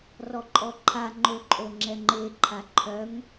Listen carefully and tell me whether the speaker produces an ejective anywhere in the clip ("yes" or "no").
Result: yes